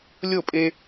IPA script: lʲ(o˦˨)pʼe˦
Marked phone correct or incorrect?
correct